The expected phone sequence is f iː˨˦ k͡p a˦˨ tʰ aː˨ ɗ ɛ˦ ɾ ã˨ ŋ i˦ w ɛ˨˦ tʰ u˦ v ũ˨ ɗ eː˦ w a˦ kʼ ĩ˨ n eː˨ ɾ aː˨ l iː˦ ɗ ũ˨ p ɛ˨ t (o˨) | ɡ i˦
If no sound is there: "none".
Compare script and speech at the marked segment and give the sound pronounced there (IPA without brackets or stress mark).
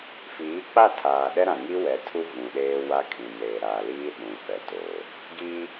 o˨